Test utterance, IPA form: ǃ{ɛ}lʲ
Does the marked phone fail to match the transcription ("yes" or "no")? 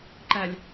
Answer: yes